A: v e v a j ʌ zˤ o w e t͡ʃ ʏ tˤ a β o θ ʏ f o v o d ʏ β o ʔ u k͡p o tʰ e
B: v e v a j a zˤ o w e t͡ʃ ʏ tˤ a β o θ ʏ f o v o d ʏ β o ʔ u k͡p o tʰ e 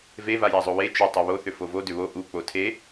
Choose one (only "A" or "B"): B